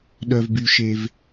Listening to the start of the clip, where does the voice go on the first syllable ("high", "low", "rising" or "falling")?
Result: low